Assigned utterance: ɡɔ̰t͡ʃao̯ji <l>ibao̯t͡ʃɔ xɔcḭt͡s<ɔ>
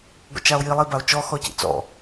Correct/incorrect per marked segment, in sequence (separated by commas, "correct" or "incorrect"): incorrect, incorrect